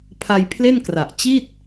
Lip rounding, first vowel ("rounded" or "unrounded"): unrounded